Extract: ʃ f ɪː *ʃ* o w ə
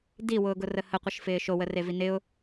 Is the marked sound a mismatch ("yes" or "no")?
no